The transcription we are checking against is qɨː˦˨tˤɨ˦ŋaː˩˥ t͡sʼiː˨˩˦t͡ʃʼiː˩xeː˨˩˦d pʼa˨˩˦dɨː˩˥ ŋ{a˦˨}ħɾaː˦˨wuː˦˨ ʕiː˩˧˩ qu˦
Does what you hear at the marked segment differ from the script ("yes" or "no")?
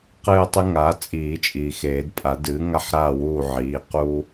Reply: yes